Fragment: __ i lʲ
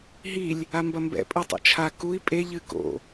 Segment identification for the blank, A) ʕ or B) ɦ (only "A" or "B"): B